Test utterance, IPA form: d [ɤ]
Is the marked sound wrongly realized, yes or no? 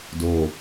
yes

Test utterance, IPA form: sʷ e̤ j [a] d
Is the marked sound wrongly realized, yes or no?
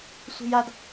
no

